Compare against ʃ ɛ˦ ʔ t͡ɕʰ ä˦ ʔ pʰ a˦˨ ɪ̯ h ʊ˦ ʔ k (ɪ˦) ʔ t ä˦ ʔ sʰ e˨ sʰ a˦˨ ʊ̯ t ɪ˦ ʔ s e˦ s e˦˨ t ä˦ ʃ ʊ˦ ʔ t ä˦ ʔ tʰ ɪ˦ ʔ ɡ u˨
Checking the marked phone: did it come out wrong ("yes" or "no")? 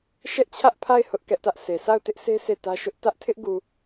yes